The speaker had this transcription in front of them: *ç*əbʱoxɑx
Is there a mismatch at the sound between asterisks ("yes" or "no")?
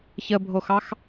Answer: no